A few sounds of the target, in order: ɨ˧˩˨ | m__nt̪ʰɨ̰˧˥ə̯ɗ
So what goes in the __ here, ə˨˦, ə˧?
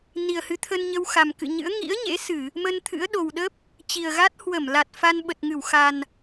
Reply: ə˧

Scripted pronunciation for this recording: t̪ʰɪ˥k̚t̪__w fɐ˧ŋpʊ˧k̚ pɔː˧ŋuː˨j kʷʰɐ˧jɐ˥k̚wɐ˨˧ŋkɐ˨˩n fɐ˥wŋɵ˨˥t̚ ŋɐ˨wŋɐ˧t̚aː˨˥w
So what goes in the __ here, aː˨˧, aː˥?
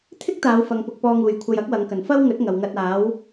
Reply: aː˨˧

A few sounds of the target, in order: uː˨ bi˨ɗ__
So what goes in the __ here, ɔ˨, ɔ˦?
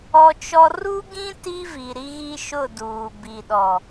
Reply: ɔ˨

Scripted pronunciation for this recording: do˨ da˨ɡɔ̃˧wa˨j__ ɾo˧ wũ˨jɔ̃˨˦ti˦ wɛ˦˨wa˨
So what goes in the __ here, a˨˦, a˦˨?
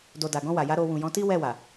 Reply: a˨˦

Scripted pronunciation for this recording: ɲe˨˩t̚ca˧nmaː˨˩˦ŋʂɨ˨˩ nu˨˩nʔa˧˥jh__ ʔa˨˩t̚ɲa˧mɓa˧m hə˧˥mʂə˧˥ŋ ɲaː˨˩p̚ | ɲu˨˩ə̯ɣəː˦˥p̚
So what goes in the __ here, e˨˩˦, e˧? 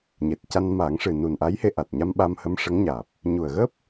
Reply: e˧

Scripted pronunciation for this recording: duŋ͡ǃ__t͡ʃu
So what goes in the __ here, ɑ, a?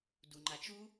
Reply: a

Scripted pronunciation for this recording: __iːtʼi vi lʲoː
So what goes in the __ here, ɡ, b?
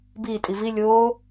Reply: b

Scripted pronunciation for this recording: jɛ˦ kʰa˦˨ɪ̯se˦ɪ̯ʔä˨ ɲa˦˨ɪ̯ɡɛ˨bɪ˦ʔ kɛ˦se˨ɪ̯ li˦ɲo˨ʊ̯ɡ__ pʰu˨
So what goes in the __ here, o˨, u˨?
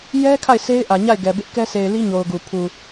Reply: u˨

